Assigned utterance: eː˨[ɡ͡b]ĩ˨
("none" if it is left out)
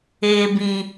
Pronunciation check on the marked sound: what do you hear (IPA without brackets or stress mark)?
b